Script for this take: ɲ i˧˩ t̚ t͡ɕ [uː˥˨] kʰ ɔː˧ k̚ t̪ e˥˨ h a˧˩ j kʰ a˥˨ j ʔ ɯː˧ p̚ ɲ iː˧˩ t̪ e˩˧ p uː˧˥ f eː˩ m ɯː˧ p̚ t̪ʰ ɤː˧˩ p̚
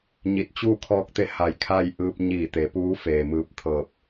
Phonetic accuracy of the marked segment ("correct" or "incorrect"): correct